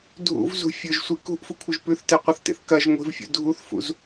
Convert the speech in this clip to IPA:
dʱ ṵ v z ṳ fʲ ɵ ʒ sʷ i k ṳ ʔ f u kʷʰ ɨ ʒ p ʉ θ t e qʷ ɐ θ t ḛ θ k ɐ ʒ ŋʷ i̤ v fʲ ṵ dʱ u θ f ṵ z

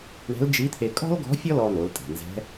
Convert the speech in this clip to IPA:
ɳ ɛ̤˧˥ l d͡ʒ i˧˥ t̪ʰ e˧ kʼ ɔ̤˥ l ɡ ɔ̤˧˥ fʲ ɔ˥ l ɔ˧ n̪ o˩˧ l tʼ ɛ̤˩ n z ɛ̤˧˥

